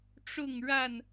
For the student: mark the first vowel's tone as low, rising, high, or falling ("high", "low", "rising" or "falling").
falling